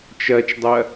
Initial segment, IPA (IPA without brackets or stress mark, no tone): t͡ʃ